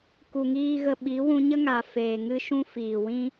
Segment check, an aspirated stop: absent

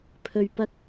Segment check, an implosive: absent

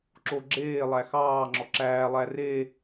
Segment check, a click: present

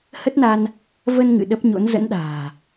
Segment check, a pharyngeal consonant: absent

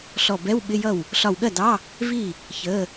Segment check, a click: absent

